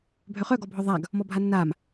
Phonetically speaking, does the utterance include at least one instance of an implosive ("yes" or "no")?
no